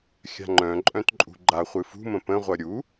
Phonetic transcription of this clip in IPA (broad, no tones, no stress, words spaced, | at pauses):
xʲa̤ŋ͡ǃœ̃ǃʼœ̃t ǃʼṳɡ͡ǃaχʷɨ fṳmə̃ pə̃ʁʷʌ ɾʲu